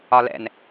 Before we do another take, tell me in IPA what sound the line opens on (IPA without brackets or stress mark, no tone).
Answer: ɒ